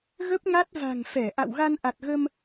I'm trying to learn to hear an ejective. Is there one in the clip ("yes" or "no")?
no